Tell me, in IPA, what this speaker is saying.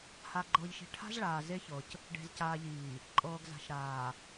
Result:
ha˨ɡ͡ǃɤː˨ʎʃi̤˨ ʈʰa̤˦z ɭaː˨ ze˦çɤ˨c | ɖe̤˨zcaː˨ʎiː˨ | ǃʼɤː˨ɡza̤˨ʃɾaː˨

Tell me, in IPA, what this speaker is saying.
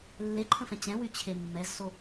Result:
lːeǃʰə̃fɛ̃ t͡ɕɛ̃wyt͡ɕʰe mːɛzso

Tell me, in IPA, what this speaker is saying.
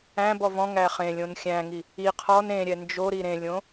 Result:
æ̃ bɔvɔ̃ ŋæχẽlʲõn xʲæ̃ŋi | i qʰɔn ẽ ɾʲɛnd͡ʒoɾi ɾẽlʲõ

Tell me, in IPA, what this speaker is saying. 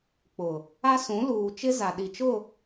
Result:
k͡pʊ˨ | a˦sũ˨˦ luː˨t͡ʃɪ˦ za˨ɗi˨t͡ʃʊ˦˨

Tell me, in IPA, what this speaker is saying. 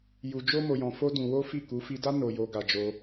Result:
ju˧ d͡ʒo˦mo˧jɔ̃˧ fo˦dũ˧wo˦fi˦˨ ku˨˦fi˧da˦ no˧jo˧ ɡa˧d͡ʒo˧

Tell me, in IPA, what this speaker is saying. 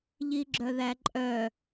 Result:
ʎiɡ͡ǁœðæǃʼœ

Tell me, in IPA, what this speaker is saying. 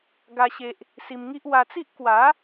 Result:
ɡa˦ɕe˦ʔ | si˧mŋi˦ʔ wa˧t͡si˦ʔ kwa˨˦

